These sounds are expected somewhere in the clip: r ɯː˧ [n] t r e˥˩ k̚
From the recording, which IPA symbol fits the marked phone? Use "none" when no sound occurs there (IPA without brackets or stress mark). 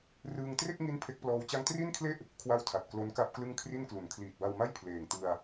ŋ